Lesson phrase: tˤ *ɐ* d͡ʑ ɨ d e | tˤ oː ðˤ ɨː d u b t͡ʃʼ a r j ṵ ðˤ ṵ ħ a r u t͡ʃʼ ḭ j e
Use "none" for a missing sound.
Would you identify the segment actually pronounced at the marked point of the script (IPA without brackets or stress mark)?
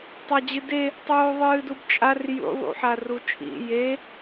a